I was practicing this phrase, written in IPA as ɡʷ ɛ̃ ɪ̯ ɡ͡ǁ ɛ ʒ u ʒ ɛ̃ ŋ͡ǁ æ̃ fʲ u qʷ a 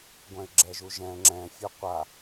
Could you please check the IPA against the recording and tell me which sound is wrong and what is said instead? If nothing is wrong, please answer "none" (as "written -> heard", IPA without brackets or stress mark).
æ̃ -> ɛ̃